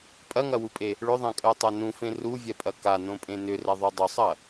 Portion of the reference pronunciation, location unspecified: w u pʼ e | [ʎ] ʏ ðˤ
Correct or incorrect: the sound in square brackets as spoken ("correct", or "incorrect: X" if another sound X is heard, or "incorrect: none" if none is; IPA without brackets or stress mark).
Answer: incorrect: ɭ